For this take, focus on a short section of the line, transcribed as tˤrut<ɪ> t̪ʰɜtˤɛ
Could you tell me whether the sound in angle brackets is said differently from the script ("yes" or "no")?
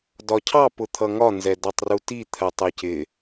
yes